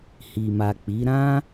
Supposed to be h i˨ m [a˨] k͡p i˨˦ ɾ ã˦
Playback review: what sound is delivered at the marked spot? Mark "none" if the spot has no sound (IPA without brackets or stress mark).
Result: a˨